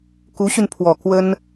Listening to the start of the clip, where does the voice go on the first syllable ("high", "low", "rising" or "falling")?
rising